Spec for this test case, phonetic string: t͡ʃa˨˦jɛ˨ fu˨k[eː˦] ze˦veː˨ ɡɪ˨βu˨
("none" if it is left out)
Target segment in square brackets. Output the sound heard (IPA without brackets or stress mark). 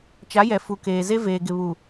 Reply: eː˨